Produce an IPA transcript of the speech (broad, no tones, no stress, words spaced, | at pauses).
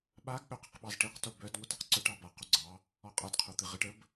ɓaɡ ɠœq əqɓɑzʈiq tobœd ŋʷœtaqǀœʈ ɑba quɡ͡ǀɑ | ɔqʼad qʰot̪ɨʁɨʈ əb